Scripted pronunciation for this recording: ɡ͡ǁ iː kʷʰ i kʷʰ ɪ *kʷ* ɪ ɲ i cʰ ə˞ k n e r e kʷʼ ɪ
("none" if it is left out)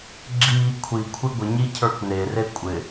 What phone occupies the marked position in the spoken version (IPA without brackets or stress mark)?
ɡʷ